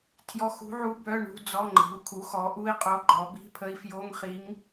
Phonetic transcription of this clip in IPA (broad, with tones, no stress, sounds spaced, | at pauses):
tʰ j ɔ˧˥˧ x ṳ˧˥ ʕ u˧˥ b œ˧˥˧ ɳ ṳ˧˥˧ d͡z ɔ˧˥˧ ŋ͡ǃ i̤˩˥ u̯ kʰ u˩˥ x ɔ˩˥ ʔ u˧˥˧ i̯ qʼ o˧˥ ɡ͡ǃ ɔ˩˥ b i̤˧˥˧ pʰ ə˧˥ i̯ f j o˧˥˧ ŋ χ i˧˥ ŋ